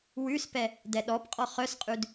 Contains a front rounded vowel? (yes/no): yes